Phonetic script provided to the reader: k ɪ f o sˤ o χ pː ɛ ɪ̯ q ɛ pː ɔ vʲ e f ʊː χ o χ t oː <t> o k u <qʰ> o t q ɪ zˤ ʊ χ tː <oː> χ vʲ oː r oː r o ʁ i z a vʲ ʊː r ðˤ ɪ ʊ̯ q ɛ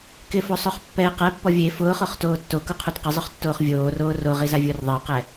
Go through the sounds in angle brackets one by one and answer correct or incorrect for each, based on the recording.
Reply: incorrect, correct, correct

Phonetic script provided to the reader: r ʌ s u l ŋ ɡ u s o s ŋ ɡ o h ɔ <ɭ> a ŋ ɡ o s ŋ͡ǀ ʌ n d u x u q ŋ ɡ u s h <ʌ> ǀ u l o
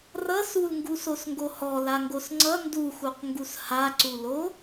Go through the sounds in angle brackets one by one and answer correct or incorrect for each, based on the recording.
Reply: incorrect, incorrect

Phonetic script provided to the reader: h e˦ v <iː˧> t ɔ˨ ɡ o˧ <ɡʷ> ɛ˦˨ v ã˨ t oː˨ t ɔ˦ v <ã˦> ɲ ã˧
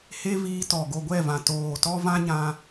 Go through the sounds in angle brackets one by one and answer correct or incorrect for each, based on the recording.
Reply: correct, correct, correct

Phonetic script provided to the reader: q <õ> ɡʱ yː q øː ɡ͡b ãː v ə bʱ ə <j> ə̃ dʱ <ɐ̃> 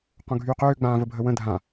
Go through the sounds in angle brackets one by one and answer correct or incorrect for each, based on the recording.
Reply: correct, incorrect, incorrect

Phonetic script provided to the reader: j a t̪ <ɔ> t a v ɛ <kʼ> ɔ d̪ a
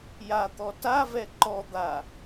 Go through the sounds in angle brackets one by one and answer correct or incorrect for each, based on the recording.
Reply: correct, incorrect

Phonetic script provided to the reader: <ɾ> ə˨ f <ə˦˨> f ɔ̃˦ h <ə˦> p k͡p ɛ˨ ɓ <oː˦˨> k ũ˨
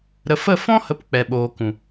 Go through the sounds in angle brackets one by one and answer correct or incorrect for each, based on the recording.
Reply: correct, correct, incorrect, incorrect

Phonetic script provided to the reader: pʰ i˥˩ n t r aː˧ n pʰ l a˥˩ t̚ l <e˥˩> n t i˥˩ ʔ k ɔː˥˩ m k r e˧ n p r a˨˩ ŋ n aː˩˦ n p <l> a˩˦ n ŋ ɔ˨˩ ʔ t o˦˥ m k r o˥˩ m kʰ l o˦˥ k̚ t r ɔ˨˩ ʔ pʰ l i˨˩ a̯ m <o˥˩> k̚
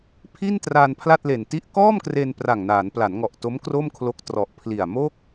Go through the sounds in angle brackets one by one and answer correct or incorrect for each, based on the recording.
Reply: incorrect, correct, correct

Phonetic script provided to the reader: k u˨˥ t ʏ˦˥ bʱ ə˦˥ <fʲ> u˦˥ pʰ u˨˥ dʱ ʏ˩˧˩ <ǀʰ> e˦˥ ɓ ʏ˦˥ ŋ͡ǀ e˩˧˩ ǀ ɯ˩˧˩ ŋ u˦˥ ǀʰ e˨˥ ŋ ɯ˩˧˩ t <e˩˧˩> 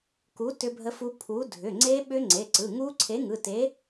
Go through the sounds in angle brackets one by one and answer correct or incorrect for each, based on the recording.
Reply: incorrect, incorrect, incorrect

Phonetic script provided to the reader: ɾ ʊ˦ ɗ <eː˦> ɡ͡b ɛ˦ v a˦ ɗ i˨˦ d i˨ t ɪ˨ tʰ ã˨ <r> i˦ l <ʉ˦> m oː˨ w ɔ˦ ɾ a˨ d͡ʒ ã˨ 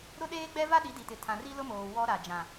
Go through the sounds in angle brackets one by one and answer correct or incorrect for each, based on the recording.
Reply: correct, correct, incorrect

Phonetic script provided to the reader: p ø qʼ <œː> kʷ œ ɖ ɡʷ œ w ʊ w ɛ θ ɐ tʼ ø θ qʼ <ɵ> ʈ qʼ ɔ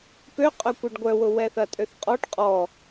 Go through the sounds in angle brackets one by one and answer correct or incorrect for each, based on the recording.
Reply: incorrect, incorrect

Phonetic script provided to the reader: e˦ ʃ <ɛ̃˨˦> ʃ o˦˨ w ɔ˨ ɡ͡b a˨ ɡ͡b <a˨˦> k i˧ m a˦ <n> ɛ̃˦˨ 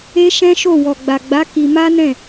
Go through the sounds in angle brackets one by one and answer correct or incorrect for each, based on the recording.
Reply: incorrect, correct, correct

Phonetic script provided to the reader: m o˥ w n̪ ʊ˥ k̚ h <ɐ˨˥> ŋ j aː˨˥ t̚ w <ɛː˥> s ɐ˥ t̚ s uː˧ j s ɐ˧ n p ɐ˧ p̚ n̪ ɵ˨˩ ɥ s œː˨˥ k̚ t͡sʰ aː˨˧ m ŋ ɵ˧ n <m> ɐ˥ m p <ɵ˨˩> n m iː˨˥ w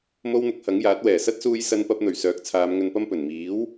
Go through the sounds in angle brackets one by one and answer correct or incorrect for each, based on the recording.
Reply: correct, incorrect, incorrect, correct

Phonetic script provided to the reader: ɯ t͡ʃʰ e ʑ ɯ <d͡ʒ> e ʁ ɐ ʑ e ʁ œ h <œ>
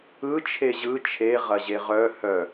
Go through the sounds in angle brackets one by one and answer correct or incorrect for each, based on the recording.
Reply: incorrect, correct

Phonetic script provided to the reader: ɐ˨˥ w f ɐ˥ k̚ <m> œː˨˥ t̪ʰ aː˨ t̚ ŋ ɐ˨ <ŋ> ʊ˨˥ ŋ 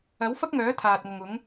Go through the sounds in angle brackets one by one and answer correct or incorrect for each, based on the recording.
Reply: incorrect, correct

